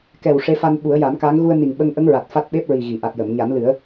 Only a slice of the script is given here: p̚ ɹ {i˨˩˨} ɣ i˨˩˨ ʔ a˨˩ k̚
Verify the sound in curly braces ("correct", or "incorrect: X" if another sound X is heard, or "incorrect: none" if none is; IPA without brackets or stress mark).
incorrect: i˨˩